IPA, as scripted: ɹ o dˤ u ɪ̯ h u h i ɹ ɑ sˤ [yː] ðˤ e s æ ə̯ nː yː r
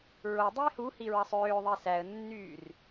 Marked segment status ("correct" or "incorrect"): incorrect